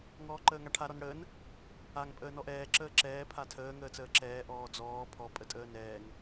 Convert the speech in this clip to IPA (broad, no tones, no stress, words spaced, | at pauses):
ŋɔːǃəːŋaʈʰa ɾɔnɽəːn | aŋ pʼəːnɔʔɛː ǁəːǁɛː pʰatʰəː ŋəːt͡səːǁɛː ʔɔːd͡zɔː pʰɔ pʼətʼəːnɛːŋ